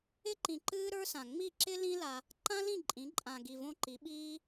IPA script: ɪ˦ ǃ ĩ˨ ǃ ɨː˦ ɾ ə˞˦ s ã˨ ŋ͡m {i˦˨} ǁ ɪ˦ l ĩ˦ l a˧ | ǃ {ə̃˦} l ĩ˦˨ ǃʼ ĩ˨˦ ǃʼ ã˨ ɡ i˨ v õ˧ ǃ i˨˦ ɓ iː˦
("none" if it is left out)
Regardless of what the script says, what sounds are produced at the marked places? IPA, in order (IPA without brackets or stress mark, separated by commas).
i˦˨, ã˦